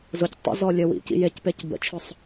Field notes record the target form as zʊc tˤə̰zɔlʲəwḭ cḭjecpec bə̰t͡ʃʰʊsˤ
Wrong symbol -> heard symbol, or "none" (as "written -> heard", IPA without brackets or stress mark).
none